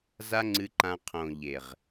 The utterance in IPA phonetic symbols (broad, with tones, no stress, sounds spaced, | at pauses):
z a˦ ŋ͡ǀ ɨ˧ ǃ ã˧ qʰ õ˨ ʎ e˨ ʁ